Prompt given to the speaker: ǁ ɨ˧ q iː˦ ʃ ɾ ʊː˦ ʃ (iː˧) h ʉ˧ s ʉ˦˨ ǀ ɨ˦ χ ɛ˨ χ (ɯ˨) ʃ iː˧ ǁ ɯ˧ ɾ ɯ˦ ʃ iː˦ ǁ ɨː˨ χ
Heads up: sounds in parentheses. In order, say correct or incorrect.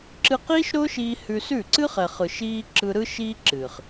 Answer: correct, correct

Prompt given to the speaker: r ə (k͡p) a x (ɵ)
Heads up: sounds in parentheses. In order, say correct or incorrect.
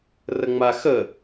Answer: incorrect: ŋ͡m, incorrect: ə

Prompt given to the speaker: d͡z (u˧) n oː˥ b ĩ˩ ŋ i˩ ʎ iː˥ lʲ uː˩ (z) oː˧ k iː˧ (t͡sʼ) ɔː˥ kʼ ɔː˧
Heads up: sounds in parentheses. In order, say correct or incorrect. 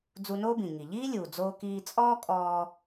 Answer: correct, incorrect: d͡z, correct

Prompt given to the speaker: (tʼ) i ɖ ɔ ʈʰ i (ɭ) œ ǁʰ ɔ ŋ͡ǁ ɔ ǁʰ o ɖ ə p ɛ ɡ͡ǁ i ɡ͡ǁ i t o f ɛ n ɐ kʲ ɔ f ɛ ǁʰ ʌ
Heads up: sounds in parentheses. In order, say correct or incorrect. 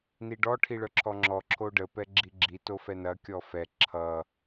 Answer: incorrect: n, correct

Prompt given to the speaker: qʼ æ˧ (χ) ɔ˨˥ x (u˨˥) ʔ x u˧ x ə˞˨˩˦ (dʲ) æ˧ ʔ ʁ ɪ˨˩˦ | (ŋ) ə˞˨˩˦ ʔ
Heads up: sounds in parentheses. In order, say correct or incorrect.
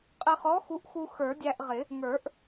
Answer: correct, correct, correct, correct

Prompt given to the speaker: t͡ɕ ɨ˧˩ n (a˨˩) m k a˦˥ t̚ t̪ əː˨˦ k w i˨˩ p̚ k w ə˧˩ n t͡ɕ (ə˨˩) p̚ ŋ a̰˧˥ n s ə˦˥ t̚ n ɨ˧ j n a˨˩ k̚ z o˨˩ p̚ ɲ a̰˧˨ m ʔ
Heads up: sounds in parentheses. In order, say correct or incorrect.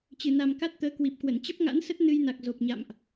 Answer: correct, incorrect: ə˦˥

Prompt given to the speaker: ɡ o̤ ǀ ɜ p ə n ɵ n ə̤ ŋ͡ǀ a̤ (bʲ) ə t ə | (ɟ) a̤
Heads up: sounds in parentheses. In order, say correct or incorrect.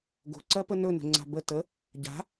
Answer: incorrect: b, correct

